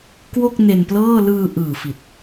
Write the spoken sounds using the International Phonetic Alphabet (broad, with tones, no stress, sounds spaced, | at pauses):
k w o˥˩ k̚ n e˧ n p l ɤː˥˩ l ɯː˧ ʔ ɯː˨˩ f i˨˩ t̚